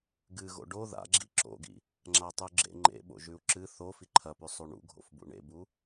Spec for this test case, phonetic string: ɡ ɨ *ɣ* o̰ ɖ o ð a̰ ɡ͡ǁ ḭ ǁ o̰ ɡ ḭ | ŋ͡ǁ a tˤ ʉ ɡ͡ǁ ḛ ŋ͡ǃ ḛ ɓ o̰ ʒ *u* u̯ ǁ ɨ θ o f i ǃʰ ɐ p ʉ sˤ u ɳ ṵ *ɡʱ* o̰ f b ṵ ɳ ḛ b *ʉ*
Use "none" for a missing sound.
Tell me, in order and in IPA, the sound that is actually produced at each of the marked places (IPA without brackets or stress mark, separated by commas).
ɣ, ʉ, ɡʱ, u